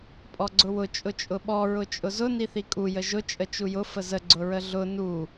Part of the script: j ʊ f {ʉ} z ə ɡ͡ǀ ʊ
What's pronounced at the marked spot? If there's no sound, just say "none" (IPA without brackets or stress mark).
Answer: ə